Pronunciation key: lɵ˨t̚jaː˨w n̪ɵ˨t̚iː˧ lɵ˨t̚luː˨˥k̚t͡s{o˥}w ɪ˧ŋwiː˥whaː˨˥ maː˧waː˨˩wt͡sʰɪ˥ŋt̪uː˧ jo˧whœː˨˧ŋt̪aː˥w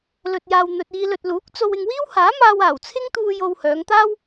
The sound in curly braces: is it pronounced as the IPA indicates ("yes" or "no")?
no